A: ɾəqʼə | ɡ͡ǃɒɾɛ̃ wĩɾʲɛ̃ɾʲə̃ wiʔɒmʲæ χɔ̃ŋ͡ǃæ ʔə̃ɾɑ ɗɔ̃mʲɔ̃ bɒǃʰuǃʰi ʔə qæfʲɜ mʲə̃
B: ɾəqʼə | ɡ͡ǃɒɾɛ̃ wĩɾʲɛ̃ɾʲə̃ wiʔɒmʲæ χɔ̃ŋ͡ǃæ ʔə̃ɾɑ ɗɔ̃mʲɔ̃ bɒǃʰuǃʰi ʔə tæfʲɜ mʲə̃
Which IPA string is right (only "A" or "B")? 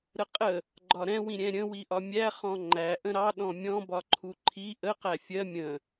A